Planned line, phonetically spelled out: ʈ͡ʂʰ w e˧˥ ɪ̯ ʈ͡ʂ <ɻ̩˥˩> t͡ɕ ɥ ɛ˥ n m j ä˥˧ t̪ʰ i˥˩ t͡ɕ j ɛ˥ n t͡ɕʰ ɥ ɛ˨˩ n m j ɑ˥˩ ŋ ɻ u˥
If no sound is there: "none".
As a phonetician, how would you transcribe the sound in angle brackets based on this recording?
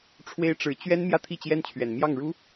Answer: ɻ̩˨˩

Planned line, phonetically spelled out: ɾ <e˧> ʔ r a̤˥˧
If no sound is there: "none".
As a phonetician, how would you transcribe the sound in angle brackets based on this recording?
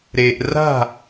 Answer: e˧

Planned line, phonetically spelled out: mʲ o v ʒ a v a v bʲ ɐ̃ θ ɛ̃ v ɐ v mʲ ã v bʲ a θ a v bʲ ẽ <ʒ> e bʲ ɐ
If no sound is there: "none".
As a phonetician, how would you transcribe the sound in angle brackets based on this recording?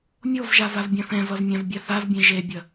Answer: ʒ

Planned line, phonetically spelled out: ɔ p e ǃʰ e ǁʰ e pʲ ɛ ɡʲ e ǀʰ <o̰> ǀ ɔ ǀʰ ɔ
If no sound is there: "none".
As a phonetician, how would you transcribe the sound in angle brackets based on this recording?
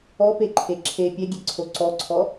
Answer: o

